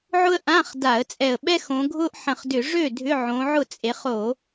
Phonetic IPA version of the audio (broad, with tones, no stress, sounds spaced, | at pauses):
ʕ ʊ˥ ə̯ ʔ ã˧˥˧ χ d a˧˩˧ ə̯ t͡sʼ ɛ˧˩ ə̯ ɓ ɛ˥ x õ˨˦ ɡʱ ʊ˥ ʔ ħ ə̃˧˩ χ d ʏ˧˩˧ ʐ ø˥˩ dʱ ʏ˧˥˧ ʕ õ˨˦ ʕ ʊ˥˩ t͡sʼ e˨˦ χ o˧˩˧